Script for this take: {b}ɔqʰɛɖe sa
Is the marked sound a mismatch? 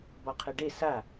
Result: no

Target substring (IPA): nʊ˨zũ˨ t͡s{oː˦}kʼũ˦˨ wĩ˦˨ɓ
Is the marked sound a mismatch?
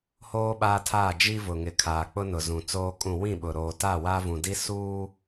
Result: no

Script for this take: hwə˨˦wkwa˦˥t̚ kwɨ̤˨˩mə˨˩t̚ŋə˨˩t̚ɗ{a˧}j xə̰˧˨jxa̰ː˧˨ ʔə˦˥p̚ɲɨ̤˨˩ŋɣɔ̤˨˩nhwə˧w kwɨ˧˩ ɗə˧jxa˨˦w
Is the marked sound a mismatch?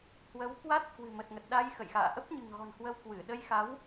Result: no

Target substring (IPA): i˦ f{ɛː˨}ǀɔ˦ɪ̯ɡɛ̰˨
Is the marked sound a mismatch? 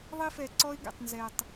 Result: yes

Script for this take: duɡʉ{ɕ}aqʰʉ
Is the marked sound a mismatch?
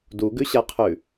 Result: no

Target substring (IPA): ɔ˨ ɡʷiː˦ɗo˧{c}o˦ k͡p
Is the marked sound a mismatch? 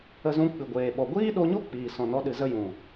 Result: yes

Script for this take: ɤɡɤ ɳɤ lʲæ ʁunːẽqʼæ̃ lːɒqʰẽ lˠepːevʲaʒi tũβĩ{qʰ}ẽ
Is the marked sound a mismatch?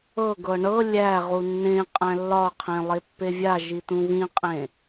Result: yes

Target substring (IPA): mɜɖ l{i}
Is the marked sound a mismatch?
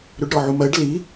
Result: no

